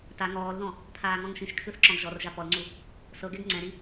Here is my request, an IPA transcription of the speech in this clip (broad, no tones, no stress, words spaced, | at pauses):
ta ŋɔːlðɔ̃ | pʰaːŋɔ̃ŋʃĩʃkʰɯθ ǁɔ̃ɡʒɔrʒa pɔlŋ͡ǀu | sɤɡɛɡ ŋ͡ǀɛ̃ɾi